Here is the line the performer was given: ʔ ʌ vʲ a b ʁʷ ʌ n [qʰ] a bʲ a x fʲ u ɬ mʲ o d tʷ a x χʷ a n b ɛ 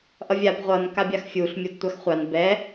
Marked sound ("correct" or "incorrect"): incorrect